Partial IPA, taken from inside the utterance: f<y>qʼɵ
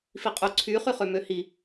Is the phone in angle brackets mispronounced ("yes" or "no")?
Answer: yes